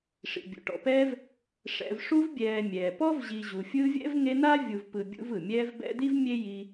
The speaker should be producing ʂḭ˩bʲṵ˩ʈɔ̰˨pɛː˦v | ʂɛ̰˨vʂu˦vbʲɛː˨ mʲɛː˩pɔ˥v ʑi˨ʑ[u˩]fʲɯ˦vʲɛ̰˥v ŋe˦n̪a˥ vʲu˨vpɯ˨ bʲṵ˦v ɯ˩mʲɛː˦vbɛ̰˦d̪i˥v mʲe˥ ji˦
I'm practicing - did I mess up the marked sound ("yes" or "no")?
no